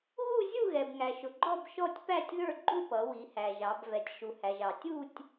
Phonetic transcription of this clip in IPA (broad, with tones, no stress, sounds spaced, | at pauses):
ɣ u˥˧ zʲ u˥˧ ɣ ɛ˩ b ŋ æ˩ ʃ ʊ˩ ɡ͡ǃ ɔ˥˧ b ʃ ɔ˥˧ tʲ p æ˥˧ tʲ ð ə˞˥˧ ɡ͡ǃ u˥˧ p ʌ˩˧ w i˩˧ h æ˩ ʒ ɑ˩˧ b v ɛ˩˧ tʲ ʃ u˩ h æ˩ ʒ ɑ˩ tʲ u˥˧ tʲ